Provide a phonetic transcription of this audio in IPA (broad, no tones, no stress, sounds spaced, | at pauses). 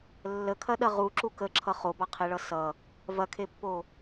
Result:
lː ə kʰ ɐ ɗ ɐ ʁ u ǁ u k ə ǁʰ ʌ χ o b ɑ qʰ e ɭ ʌ s ʌ | v ɐ kʰ e pː o